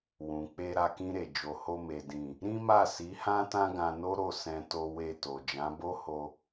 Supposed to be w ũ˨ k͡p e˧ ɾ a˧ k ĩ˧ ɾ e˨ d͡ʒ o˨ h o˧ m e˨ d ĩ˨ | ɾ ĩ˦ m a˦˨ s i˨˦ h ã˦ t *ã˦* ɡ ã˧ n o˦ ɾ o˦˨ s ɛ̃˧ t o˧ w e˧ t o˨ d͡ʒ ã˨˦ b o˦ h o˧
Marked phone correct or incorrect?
correct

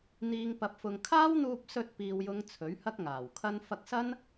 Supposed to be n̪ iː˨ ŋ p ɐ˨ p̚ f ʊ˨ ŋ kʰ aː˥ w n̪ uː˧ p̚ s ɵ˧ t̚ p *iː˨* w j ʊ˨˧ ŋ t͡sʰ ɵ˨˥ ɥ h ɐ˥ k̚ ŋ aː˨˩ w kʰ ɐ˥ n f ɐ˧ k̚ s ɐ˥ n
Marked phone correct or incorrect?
correct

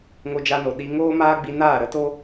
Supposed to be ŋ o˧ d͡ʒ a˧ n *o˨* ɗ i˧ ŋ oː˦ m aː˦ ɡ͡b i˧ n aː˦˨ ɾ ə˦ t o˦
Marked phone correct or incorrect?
correct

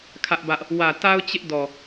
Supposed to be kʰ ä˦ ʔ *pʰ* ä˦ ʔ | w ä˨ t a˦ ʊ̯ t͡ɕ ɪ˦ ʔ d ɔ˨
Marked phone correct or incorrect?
incorrect: b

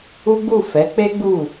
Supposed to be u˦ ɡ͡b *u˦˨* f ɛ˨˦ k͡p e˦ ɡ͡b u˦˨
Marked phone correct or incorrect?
correct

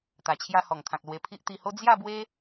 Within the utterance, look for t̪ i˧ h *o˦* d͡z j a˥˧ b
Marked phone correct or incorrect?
correct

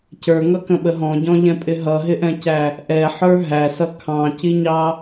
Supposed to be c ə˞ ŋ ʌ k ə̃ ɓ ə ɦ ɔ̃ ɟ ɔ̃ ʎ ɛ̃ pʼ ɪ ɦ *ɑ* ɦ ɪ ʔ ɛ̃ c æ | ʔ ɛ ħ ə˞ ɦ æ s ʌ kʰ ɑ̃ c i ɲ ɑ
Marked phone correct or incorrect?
incorrect: ʌ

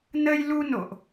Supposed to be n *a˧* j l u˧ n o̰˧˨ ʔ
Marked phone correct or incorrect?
incorrect: ə˧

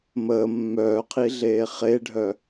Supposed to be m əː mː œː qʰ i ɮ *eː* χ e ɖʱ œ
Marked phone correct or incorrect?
correct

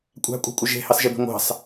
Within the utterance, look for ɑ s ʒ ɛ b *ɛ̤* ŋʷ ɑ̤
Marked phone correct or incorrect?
incorrect: e̤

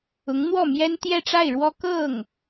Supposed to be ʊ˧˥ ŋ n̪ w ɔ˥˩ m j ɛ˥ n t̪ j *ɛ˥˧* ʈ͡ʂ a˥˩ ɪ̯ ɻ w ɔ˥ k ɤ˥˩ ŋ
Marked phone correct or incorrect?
correct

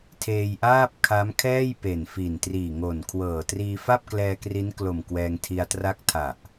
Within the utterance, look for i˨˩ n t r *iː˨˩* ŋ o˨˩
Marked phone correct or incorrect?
correct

